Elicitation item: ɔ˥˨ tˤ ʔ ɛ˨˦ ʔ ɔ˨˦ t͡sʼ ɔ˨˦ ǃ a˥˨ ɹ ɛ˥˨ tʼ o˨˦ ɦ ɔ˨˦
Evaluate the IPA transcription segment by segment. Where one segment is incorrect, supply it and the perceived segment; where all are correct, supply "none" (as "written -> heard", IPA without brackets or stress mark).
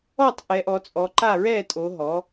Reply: none